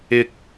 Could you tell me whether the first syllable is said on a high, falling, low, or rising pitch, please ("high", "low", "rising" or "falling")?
high